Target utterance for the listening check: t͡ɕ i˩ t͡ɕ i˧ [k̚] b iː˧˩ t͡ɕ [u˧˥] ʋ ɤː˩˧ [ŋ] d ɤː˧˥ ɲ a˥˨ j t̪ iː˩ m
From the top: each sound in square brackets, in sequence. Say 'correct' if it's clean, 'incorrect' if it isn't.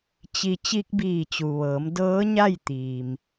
correct, incorrect: u˩, incorrect: m

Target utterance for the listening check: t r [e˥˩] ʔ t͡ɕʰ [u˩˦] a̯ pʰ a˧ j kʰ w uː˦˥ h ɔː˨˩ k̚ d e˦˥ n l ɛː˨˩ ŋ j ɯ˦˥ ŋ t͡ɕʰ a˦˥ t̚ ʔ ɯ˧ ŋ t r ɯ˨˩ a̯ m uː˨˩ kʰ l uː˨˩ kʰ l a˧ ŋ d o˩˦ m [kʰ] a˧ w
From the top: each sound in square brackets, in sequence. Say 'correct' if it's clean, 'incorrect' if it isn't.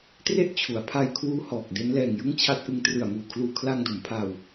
correct, correct, incorrect: pʰ

